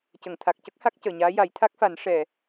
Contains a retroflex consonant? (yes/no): yes